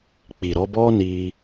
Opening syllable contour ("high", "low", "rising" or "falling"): low